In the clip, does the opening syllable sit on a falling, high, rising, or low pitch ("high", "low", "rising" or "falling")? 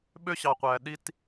high